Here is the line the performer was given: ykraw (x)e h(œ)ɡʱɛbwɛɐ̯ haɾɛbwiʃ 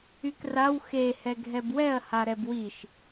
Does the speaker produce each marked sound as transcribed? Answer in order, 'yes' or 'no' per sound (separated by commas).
yes, no